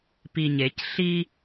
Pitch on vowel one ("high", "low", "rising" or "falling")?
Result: low